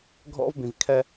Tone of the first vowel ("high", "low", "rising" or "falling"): high